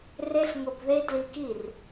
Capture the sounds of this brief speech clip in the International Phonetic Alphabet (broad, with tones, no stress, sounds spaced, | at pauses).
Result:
r e˦ ɬ ŋ ʊ˧ b ð e˦ d l i˧ k i˦˨ r